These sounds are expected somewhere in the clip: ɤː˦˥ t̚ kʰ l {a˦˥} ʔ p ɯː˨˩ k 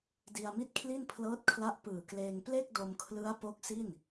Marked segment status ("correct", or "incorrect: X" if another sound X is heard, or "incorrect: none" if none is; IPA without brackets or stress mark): correct